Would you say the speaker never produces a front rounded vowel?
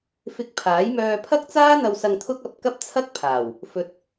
no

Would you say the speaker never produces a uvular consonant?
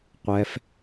no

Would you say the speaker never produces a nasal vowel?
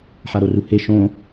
no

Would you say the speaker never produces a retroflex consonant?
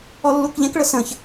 no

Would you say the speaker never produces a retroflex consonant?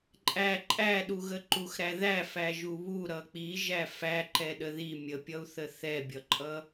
yes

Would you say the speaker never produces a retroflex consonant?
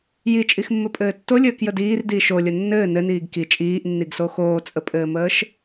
yes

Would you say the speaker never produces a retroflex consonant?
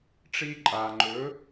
no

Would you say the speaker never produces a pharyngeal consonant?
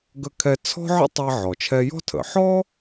no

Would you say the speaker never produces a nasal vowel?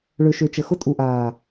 yes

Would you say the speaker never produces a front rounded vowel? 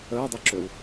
no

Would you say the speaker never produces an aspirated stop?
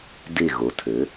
no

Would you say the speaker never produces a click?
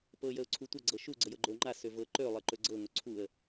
no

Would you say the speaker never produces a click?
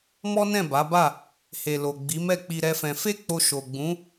yes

